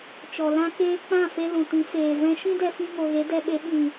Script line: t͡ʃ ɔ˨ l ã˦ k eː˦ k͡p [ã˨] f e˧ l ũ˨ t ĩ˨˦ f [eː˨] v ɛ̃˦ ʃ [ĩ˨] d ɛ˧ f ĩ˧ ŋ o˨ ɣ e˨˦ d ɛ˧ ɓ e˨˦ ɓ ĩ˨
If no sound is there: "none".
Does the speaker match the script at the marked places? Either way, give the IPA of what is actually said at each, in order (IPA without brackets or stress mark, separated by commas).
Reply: ã˦˨, eː˨, ĩ˦